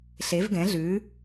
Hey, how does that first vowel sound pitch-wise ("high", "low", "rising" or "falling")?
rising